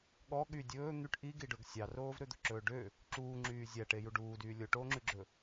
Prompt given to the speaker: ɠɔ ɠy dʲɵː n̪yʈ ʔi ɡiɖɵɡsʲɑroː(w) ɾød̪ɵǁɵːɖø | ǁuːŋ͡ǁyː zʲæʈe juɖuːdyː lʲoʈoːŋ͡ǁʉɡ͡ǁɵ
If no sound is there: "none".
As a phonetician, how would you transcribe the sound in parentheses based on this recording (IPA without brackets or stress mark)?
v